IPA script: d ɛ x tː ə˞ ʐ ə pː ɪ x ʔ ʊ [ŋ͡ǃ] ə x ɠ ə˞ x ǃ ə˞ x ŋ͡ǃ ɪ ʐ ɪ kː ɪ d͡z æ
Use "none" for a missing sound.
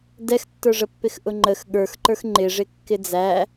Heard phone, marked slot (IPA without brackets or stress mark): ŋ͡ǃ